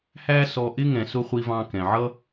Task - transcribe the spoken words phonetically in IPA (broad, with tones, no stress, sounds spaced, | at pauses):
h æ˦ s ɔ˧ ʔ ɪ˦ ŋ ɛ̃˨ s ʊ˦˨ χʷ i˧ v ɑ̃˧ k ɛ̃˨ ʕ ʌ˦